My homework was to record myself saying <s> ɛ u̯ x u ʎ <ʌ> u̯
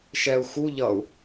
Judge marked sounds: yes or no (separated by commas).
no, yes